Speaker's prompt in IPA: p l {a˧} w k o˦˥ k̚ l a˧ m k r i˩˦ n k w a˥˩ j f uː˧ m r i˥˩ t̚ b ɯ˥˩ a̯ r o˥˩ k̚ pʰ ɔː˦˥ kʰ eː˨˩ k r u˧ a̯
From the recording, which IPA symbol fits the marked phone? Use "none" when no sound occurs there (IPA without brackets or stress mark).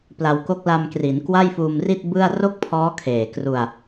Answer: a˧